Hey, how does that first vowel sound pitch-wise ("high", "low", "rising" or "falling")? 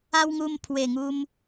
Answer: high